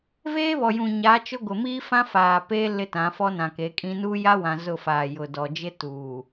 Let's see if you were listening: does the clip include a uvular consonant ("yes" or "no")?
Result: no